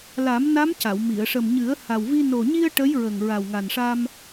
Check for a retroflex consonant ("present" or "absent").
present